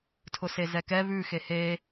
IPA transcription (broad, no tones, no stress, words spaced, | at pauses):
tʰʊsezɛkɛ βʉ xehe